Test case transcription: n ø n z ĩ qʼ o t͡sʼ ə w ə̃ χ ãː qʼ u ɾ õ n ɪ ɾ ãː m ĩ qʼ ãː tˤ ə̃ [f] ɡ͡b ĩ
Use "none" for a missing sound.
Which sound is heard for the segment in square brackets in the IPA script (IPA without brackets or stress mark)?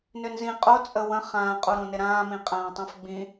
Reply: f